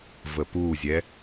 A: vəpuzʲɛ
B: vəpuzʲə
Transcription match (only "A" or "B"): A